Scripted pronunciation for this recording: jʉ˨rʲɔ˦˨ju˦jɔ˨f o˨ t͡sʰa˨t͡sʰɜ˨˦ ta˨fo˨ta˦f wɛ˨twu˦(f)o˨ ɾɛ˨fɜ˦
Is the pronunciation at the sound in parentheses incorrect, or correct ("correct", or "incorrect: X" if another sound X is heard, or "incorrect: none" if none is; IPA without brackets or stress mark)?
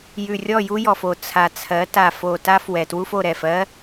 correct